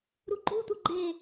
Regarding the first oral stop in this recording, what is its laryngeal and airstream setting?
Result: click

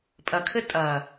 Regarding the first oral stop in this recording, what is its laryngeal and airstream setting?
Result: ejective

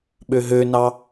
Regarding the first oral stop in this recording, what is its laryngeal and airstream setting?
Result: implosive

